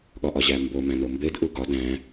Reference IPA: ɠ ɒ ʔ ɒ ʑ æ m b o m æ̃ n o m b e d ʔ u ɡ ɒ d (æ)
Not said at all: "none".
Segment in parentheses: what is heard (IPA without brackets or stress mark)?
æ̃